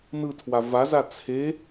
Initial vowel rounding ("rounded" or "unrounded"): unrounded